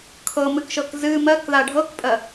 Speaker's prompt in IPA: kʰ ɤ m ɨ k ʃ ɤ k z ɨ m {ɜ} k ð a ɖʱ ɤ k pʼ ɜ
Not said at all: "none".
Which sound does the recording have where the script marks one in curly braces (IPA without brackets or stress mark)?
ɜ